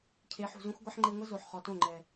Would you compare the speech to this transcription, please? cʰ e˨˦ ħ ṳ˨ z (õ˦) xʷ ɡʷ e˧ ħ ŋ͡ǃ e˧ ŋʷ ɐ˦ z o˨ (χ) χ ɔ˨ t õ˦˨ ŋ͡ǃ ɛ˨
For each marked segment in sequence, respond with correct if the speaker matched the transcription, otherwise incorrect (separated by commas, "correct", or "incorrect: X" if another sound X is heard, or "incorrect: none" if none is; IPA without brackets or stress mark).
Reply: correct, incorrect: ħ